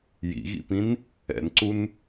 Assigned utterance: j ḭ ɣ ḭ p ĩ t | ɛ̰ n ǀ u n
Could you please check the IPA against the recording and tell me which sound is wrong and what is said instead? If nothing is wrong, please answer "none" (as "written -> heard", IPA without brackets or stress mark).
t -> n